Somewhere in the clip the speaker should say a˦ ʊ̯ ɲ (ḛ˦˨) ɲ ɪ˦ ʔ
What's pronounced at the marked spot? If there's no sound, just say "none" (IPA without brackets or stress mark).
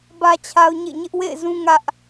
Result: ḛ˦˨